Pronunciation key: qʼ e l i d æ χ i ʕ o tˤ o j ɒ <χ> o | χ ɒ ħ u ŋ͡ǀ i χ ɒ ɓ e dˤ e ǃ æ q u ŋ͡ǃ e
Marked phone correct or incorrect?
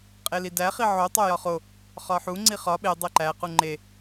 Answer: correct